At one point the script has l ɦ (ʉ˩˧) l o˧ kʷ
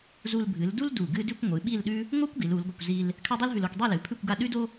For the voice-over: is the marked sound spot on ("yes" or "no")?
no